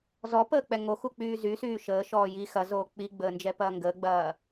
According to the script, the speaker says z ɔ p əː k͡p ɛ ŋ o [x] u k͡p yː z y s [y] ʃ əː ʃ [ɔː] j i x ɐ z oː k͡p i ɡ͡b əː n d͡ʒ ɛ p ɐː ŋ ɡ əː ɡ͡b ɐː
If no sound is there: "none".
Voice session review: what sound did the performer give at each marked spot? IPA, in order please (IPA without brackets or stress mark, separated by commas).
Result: x, yː, ɔː